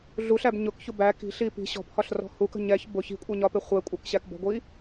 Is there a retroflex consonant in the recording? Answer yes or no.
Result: no